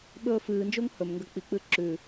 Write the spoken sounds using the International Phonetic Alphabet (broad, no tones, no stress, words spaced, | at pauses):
ɓɵːfɨːnd͡ʒoŋ hɵmŋɡɐ k͡pik͡pɨ ǁʉ